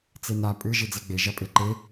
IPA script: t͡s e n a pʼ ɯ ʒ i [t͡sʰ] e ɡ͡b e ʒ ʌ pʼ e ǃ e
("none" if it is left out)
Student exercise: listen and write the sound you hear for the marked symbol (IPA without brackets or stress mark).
d͡z